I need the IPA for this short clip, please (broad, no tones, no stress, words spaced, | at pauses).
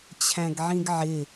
t͡ɕʰæ̃ɡʕĩɡʕɪ